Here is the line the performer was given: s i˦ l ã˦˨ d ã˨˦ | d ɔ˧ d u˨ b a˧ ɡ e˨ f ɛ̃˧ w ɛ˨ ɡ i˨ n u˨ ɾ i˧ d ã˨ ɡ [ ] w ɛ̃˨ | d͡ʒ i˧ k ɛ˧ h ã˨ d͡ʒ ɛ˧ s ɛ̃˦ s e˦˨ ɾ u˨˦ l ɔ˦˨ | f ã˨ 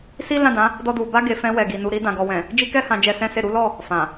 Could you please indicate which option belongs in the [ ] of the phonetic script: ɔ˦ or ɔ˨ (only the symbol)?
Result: ɔ˨